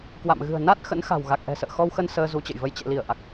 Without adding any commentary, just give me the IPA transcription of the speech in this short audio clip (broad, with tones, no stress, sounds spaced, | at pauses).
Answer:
k w a̰˧˨ m ɣ ɨ̤˨˩ ə̯ n a˦˥ t̚ x ə̰˧˥ n x a̤˨˩ w ɣ a˨˩ k̚ ʔ ɛ̤˨˩ s ə̰ː˧˨ x ɔ˧ w x ə˧ n s əː˧ z u˨˦ t͡ɕ ə̰˧˨ j v ə˧ j t͡ɕ ɛ̰˧˨ l i˧˩ ə̯ ʔ a˨˩ k̚